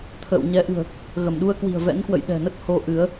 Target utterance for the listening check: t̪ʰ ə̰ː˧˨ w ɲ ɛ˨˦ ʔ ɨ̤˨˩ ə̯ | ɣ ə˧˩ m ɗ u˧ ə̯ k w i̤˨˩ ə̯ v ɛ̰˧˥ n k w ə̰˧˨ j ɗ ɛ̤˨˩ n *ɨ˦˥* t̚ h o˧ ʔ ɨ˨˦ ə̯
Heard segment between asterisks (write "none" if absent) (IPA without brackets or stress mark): ə˦˥